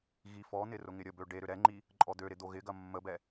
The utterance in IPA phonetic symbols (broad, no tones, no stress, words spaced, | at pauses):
ɣifɔn̪ɪ rʊŋɪɾʲəbø ɖeɾʏ ɾɛŋ͡ǃi | ǃʼɔd̪øɾɪ d̪oɣɪɡɐ mːəbɛ